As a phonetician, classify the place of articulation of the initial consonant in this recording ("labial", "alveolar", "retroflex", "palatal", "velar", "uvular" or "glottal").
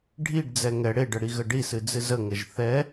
retroflex